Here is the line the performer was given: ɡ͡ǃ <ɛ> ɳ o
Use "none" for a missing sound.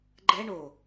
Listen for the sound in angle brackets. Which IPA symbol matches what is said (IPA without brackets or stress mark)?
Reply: ɛ